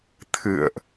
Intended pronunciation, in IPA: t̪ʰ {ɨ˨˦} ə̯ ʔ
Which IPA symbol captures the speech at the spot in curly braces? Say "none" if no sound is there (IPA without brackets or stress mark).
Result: ɨ̰˧˨